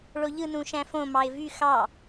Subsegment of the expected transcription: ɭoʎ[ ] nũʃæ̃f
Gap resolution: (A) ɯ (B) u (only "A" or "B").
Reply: A